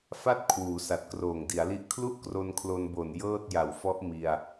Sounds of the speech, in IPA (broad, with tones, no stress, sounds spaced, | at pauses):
f a˥˩ t̚ kʰ w uː˩˦ s a˨˩ t̚ k r oː˨˩ ŋ d i˩˦ a̯ l i˦˥ ʔ kʰ l u˥˩ ʔ k r o˧ n kʰ l o˧ n b o˨˩ n j ɤː˥˩ t̚ j a˨˩ w f ɔ˦˥ ʔ m i˧ a̯